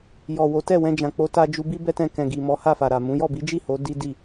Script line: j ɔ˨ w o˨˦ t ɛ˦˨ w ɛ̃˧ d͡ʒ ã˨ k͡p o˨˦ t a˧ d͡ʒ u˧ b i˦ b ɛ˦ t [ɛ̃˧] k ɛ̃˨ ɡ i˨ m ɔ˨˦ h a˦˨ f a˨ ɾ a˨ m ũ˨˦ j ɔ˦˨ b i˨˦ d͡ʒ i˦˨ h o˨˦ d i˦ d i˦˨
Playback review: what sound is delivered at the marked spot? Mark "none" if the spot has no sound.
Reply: ɛ̃˧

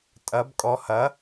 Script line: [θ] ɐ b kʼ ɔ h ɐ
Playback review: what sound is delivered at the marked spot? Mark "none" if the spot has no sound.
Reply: tʼ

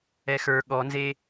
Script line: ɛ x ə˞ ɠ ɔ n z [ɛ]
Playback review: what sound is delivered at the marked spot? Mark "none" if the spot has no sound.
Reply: e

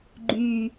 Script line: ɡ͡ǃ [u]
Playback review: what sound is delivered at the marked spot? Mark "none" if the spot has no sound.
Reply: y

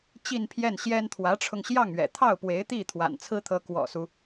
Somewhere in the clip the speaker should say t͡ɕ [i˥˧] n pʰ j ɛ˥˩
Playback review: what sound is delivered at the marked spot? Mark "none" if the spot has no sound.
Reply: i˥˧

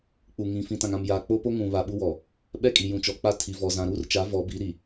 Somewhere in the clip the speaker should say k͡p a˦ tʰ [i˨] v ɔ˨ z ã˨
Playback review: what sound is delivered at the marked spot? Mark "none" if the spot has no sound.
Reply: i˨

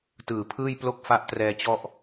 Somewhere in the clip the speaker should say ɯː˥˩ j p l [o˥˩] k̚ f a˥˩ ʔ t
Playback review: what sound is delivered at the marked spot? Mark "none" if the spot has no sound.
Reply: o˥˩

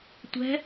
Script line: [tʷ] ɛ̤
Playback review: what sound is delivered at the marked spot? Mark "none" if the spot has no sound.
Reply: tʷ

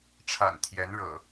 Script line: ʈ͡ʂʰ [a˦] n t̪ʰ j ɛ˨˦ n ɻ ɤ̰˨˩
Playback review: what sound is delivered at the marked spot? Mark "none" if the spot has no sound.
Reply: a̰˨˩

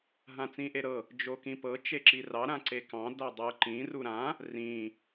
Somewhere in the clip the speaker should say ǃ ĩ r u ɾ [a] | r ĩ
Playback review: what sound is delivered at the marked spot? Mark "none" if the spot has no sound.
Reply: ã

